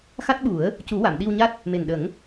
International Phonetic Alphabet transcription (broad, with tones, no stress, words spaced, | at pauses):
xa˦˥t̚ɓu˨˩˦ə̯ | cu˨˩˦wa˨˩˨m ɗi˧wɲa˦˥t̚ | me˨˩nɗə˨˩˦ŋ